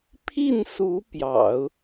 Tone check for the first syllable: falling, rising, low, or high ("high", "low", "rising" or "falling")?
falling